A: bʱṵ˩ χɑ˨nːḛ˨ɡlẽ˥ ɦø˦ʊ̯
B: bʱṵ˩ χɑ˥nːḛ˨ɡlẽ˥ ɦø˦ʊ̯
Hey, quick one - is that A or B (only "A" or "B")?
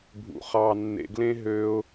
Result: A